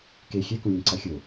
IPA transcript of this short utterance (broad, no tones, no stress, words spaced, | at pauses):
ke xʲɛkũlʲɛ̃ ǀaxʲo